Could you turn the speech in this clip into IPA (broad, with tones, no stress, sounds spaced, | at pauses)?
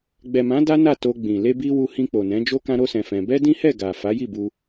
ɡ͡b ɛ˨ m ã˨˦ d a˦ n a˦˨ t o˧ ɡ͡b ĩ˨ l e˧ b i˧ w u˧ h ĩ˧ k͡p o˨ n ɛ̃˨˦ d͡ʒ o˦ k ã˦ ɾ o˦ s ɛ̃˧ f ɛ̃˧ b ɛ˦ d ĩ˦ h ɛ˦˨ ɡ a˨ f a˨˦ j i˦˨ b u˧